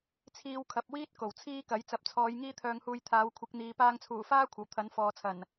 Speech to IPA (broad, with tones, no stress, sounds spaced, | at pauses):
t͡sʰ iː˧ w kʰ ɐ˨ p̚ w iː˥ t̚ k o˨˩ w t͡sʰ iː˥ k ɐ˨˥ j t͡s ɐ˨˥ p̚ t͡sʰ ɔː˨˧ j ŋ iː˥ t̪ʰ œː˧ ŋ h uː˧ j t̪ʰ aː˨˥ w kʷʰ ɪ˨˥ k̚ n̪ iː˨ p aː˧ ŋ t͡sʰ uː˨˩ f aː˥ kʷʰ ɐ˨˩ w t̪ʰ ɐ˨˥ n f ɔː˨ t͡sʰ ɐ˨˩ n